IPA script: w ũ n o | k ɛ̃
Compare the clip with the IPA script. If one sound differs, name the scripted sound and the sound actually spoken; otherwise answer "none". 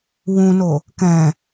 none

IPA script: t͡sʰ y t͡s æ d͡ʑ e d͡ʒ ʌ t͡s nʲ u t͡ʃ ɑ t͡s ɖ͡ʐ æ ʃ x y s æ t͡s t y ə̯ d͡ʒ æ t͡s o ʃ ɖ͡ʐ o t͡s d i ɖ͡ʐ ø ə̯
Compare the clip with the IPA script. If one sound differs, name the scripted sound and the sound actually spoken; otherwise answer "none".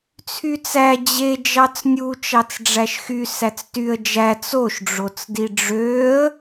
ʌ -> ɑ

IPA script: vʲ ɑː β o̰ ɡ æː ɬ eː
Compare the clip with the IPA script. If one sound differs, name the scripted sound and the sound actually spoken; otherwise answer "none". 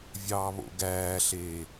none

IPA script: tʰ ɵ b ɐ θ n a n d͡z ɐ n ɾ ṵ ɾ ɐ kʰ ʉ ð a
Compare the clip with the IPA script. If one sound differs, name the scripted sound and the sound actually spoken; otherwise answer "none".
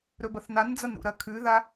tʰ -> ɾ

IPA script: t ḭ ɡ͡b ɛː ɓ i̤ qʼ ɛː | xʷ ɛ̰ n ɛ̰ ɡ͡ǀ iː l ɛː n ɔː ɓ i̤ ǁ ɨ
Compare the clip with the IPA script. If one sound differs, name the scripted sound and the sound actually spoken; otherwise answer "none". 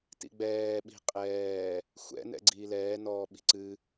ǁ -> ǀ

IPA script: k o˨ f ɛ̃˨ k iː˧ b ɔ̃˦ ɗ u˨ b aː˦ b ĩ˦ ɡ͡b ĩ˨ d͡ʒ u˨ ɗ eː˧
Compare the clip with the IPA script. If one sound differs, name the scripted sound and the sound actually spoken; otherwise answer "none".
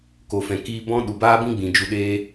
none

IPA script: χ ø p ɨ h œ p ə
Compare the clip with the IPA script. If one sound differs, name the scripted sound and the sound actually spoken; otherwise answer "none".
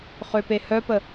ɨ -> e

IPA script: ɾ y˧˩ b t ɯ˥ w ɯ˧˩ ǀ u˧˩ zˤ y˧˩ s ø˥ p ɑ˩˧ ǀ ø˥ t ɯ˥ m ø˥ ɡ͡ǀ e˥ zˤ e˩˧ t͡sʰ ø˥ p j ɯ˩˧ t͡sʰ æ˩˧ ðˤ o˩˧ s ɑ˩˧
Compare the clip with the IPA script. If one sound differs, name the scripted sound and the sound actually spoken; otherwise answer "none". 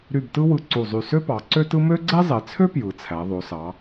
none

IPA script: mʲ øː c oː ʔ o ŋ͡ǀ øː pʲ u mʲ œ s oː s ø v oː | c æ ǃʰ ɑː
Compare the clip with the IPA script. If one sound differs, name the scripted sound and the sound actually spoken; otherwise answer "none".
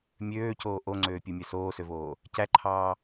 none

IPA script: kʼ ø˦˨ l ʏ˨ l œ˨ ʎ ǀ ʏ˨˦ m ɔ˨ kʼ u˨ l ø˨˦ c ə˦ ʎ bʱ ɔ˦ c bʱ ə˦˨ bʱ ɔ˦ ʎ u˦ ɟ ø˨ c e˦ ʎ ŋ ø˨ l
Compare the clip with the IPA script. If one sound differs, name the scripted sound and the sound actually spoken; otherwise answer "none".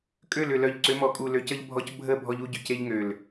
none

